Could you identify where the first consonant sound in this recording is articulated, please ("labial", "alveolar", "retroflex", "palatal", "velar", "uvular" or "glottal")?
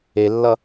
alveolar